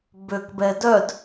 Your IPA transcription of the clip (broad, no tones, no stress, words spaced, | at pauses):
bøkbɛ dœd